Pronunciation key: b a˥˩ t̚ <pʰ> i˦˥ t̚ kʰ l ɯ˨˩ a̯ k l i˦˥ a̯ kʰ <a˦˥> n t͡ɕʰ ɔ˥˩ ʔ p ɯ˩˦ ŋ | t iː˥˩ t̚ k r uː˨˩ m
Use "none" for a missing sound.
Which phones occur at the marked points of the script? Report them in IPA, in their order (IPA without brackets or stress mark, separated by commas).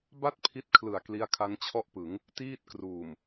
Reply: pʰ, a˦˥